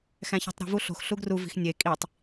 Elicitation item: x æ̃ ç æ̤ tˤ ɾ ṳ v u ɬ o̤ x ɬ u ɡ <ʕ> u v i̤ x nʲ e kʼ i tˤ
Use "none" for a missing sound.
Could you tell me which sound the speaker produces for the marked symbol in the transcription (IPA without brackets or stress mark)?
r